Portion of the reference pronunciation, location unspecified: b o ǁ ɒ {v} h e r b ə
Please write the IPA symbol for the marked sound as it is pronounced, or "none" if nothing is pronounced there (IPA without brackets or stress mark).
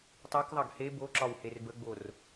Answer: w